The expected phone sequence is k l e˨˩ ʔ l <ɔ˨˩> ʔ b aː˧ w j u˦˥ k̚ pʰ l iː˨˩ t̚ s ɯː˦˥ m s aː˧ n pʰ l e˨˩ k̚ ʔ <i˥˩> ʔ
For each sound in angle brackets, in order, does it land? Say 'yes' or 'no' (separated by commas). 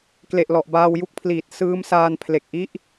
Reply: yes, yes